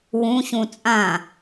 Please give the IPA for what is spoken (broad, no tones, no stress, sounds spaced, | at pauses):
w ũ ɕ ũ t͡sʼ ã